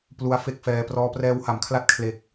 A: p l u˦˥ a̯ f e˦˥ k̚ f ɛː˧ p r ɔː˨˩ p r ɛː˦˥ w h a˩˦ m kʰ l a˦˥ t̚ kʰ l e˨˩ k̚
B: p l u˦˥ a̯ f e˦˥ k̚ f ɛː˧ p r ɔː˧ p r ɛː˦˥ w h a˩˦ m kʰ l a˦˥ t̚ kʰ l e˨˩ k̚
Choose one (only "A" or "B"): B